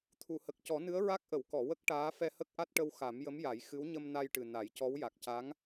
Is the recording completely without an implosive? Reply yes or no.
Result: yes